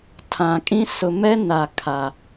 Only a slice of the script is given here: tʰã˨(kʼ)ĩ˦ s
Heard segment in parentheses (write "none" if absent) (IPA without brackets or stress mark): kʼ